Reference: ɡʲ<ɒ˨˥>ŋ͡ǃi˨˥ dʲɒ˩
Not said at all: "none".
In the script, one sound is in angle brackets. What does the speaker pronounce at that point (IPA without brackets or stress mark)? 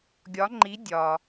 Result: ɒ˨˥